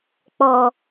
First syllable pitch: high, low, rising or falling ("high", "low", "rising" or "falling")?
low